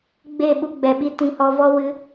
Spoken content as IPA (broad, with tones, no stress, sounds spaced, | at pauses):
ɡ͡b e˦˨ ɓ u˧ ɡ͡b ɛ˨ ɓ i˧ t ĩ˧ h ɔ˧ v ɔ˦ w ɨ˧